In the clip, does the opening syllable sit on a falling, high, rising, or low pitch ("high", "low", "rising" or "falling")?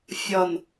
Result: low